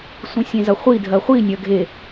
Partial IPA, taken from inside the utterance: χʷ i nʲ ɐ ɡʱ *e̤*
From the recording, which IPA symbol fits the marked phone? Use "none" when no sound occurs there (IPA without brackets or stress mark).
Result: e